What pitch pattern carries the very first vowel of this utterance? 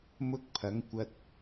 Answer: high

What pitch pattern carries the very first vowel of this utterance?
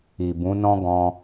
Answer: low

